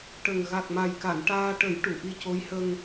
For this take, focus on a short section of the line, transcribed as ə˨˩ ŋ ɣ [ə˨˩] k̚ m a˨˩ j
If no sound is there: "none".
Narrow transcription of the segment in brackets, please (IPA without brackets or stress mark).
a˨˩